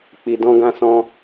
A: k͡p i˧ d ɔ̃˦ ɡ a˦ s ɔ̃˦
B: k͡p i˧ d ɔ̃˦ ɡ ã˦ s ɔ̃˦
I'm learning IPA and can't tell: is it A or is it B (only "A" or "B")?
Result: B